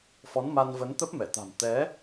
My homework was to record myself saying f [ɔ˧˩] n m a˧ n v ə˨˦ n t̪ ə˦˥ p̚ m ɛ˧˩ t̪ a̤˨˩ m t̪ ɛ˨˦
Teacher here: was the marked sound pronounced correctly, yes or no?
no